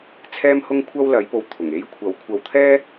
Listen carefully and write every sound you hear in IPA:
t͡sʰɛː˥mhʊ˥ŋkʷʰɐ˥w lɐ˨˧jpo˨w t̪ʰʊ˨˩ŋe˥j kʷʰɐ˨˥w kʷʰɐ˨wt̪ʰɛː˥

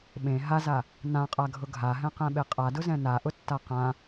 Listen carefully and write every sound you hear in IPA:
ɓẽ ɦaza | nãqʼaɡʱʊ ɡʱaɦɛ̃qɛ̃ɓe qʼadʊzɛ̃ naʔʊtːa qã

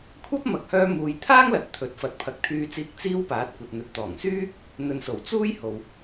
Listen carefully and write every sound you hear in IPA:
kʷʰɐ˥p̚mɐ˨k̚hœː˧ muː˨jt̪ʰaː˥ŋlɐ˨t̚ t̪ʰɵ˨˥t̚fɐ˨˥t̚ pʰɐ˨˥k̚t̪ʰyː˧t͡siː˧k̚ t͡siː˧w paː˨˥t̚ kʷɐ˨t̚ n̪ɵ˨t̚t̪ɔː˨˩ŋsyː˥ | n̪ɵ˨nso˨˩w t͡suː˥j ho˨w

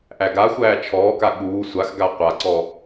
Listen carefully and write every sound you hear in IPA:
ʔæɡaxʷæː t͡ʃʰɔːka ɠuː sʷaxɡa qʷaǀɔ

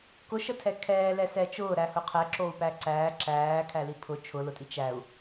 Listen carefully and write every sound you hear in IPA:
kʊʃətʰɛ kʰɛːlɛsɛ t͡ʃʊːɾæhʊ qʰɛǁou̯pæ ǀæː ǁæːkʰæli pʰʊ t͡ʃʰʊlʊtʼi t͡ʃæu̯

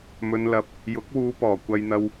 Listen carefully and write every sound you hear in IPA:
mɵ˨nlɐ˨˥p̚ | jʊ˨˥k̚ wuː˨˧pɔː˨˩ kʷɐ˧jn̪ɐ˧w

